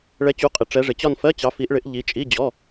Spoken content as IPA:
ɭ ɛ˨˦ t͡ɕ u˨˦ qʼ ɪ˨˦ ʈ͡ʂ ɛ˨˦ ʐ ɪ˨˦ t͡ɕ ɒ˥˧ n f ɜ˧˥˧ t͡ɕ ɑ˨˦ f i˨˦ ʔ ɭ ɪ˨˦ ʔ ʎ i˨˦ t͡ʃʼ i˧˥˧ d͡ʑ ɔ˧˥˧

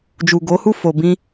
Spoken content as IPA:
d͡ʒ u˨ ɡ o˨˦ h u˦˨ f o˨ b ĩ˧

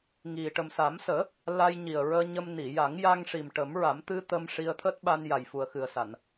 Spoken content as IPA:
ŋ i˨˩ ʈ ə˨˩ m s a˨˩˦ m s əː˨˩˦ | l a˧ j ɲ i˨˩ ə̯ ɹ əː˧ ɲ ə˧ m n i˨˩˨ j a˨˩˦ ŋ j a˧ ŋ ʂ i˨˩ m ʈ ə˨˩˦ m ɹ a˨˩˦ m t̪ ɨ˧ t̪ ə˧ m ʂ i˧ ə̯ t̪ʰ əː˦˥ t̚ ɓ a˧ n j a˨˩ j f u˨˩ ə̯ x ɨ˨˩ ə̯ s a˨˩˨ n

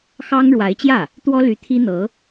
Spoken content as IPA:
x ɑ˥ ŋ ɻ w a˧˥ ɪ̯ t͡ɕ j ä˥˩ | t̪ w ɔ˥ l y˧˥ t̪ʰ i˥ n̪ ɤ˧˥

